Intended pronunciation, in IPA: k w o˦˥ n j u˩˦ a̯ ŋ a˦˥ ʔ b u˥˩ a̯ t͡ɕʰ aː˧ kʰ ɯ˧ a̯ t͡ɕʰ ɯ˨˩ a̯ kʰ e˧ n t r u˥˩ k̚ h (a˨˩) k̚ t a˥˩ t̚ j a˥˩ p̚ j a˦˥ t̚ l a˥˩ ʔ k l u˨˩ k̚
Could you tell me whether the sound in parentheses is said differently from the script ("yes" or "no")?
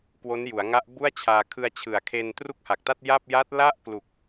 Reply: no